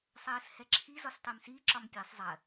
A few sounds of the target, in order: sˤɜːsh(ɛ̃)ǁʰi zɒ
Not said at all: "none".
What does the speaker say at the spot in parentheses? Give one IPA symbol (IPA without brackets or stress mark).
ɛ